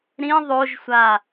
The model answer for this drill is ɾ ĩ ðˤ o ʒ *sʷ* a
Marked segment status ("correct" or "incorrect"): correct